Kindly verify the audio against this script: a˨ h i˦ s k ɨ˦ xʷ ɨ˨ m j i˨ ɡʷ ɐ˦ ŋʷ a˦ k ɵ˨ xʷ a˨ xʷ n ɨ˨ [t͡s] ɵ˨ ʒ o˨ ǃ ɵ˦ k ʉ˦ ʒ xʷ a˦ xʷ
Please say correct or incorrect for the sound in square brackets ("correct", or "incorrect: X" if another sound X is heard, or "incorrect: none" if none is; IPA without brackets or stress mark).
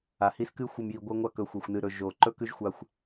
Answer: incorrect: ɾ